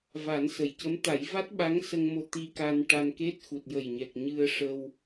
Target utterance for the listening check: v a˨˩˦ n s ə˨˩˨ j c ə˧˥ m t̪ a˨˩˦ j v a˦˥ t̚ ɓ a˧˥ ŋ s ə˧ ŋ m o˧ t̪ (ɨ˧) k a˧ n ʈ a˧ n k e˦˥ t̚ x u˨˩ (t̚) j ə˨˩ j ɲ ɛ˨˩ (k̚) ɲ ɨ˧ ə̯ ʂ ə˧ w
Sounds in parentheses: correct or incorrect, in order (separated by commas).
incorrect, correct, correct